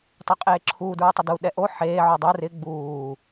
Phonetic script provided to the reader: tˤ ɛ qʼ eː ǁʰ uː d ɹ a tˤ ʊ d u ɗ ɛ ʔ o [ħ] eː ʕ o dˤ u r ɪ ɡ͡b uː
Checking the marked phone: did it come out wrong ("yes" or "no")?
no